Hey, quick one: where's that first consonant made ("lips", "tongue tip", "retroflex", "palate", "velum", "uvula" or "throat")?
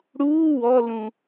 retroflex